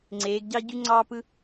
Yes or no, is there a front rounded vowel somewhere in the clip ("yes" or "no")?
yes